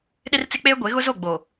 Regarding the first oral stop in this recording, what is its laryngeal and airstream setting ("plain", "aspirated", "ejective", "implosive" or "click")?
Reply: implosive